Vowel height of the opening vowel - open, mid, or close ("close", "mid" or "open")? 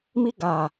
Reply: close